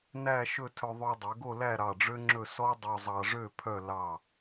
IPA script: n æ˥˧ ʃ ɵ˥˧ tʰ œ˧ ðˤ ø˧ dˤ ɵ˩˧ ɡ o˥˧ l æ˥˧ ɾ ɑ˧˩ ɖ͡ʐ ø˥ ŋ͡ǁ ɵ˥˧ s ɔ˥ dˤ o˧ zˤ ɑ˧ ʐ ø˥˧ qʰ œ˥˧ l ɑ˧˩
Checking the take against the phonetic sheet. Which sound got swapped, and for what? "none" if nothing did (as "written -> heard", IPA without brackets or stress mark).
qʰ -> pʰ